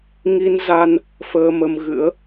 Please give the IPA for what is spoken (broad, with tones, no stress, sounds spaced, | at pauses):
ŋ i˧ n z a˧ n | f əː˧ m ə˧ m ɣ ɨ̰˧˥ ə̯